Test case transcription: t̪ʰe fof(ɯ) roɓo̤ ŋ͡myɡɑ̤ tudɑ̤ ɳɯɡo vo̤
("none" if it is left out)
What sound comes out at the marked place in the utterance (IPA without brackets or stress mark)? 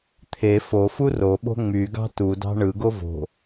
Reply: u